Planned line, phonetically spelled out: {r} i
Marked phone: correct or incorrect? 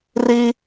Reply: correct